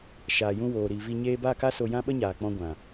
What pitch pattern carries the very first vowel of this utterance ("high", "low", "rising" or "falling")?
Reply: low